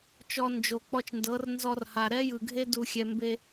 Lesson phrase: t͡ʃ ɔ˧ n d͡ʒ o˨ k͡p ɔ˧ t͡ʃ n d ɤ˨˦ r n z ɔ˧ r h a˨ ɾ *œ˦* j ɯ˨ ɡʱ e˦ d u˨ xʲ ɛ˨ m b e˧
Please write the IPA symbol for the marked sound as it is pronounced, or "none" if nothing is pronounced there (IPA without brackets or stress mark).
ɛ˦